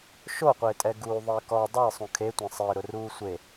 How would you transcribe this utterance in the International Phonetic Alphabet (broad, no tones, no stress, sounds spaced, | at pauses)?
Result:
ʃ o qʷ ɪː tʼ ɛ ɡ uː ðˤ ɪː k ɔ dˤ ʊ ɪ̯ sˤ ũ kʰ e tʷ ẽ sˤ ɪː ɾ ʊ r uː sʷ e